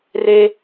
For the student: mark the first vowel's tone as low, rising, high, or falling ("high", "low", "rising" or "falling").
high